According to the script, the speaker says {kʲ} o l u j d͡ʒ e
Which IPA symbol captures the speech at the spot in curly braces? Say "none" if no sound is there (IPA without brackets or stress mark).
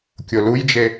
kʲ